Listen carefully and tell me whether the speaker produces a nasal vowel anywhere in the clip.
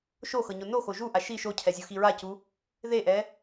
no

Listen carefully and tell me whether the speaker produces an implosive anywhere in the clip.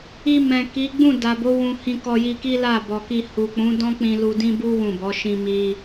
no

